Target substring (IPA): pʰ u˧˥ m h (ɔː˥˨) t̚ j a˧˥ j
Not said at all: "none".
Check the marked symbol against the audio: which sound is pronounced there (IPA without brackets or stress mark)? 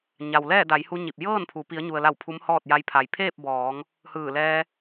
ɔː˥˨